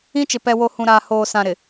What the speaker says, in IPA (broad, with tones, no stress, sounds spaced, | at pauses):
ĩ˦ t͡ʃ ɪ˨ p ɛ˨ w o˨ h ũ˨ ɾ aː˨ h oː˨ s ã˨ ɾ ɪ˨